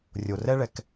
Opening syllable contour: low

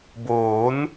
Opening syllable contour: rising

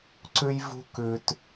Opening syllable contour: high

